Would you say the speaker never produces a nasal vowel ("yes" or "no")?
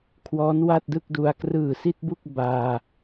yes